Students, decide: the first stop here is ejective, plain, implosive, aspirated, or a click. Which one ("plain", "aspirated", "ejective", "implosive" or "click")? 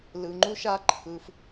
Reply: click